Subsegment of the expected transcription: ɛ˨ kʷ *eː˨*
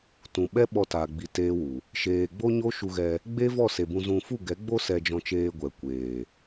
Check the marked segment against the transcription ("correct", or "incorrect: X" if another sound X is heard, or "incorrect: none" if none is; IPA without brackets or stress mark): correct